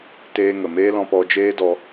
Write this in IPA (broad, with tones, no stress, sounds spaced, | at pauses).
t eː˧ ŋ ə˨ m eː˦ l ɔ̃˧ p ɔ˧ d͡ʒ eː˦ d ɔ˧